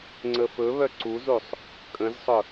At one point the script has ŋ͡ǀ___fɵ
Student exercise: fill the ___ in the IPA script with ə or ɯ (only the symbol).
ə